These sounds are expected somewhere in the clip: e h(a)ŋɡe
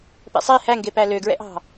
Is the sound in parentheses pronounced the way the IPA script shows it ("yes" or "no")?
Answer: no